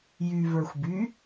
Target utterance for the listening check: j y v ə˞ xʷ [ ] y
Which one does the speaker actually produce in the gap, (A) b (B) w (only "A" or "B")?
A